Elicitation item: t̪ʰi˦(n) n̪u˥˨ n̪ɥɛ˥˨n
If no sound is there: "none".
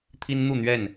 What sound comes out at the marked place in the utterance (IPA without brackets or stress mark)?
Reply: n